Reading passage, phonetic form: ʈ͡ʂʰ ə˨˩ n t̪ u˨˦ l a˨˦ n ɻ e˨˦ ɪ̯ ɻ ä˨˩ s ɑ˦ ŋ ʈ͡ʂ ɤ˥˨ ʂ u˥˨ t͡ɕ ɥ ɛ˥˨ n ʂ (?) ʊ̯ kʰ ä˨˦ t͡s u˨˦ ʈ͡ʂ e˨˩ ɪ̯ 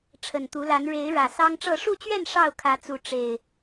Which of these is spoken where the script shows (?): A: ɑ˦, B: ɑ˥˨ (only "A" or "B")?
B